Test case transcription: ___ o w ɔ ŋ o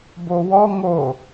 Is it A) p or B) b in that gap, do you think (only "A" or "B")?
B